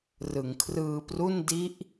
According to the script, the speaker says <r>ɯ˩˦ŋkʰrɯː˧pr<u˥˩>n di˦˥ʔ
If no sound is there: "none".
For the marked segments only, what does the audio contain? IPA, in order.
r, u˥˩

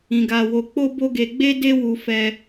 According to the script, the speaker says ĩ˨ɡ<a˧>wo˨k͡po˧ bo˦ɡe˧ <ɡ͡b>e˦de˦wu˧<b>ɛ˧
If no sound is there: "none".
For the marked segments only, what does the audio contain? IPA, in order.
a˨, ɡ͡b, f

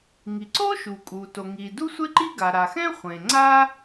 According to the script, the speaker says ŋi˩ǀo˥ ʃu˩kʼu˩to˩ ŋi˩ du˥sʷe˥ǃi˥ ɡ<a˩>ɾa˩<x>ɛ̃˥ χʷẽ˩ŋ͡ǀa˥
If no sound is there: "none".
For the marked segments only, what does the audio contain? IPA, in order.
a˩, x

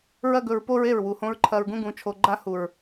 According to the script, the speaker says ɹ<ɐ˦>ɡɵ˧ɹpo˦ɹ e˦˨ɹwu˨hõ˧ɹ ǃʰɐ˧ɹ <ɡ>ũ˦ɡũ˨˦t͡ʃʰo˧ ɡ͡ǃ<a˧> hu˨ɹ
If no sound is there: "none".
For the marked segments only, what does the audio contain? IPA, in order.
ɐ˦, ɡ, a˦

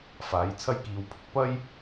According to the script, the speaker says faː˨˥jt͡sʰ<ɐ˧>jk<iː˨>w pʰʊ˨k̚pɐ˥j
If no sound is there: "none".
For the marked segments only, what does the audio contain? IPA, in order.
ɐ˥, iː˧

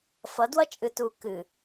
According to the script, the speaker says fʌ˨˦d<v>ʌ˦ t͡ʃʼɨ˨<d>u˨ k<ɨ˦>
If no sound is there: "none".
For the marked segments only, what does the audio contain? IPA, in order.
w, t, ɨ˨

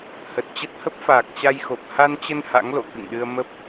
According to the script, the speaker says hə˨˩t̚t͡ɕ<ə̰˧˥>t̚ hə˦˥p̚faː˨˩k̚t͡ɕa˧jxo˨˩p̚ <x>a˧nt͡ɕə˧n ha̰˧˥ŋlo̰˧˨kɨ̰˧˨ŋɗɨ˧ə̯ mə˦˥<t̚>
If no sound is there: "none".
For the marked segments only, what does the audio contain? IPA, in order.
ə˦˥, h, p̚

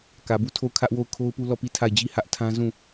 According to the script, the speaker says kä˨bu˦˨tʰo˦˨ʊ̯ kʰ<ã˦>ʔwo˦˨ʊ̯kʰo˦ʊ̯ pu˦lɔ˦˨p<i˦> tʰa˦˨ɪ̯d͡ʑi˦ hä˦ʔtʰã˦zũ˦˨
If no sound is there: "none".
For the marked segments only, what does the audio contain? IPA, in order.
ä˦, i˦˨

